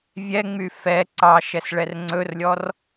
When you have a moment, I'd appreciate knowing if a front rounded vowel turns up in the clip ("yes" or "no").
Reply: yes